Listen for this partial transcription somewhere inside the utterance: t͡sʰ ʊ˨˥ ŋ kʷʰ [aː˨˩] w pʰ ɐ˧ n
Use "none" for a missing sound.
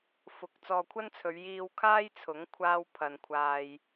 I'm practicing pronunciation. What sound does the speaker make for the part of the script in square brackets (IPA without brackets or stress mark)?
aː˥